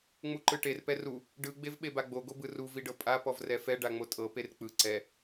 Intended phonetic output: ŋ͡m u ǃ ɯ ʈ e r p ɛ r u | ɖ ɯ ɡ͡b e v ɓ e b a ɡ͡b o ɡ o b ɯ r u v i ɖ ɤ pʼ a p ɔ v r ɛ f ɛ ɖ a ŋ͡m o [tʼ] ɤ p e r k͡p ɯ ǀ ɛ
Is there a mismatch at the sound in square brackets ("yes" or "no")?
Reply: no